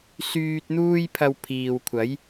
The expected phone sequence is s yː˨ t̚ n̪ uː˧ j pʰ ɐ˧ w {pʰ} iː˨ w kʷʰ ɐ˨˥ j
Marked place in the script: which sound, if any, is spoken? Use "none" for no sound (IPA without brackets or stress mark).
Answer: pʰ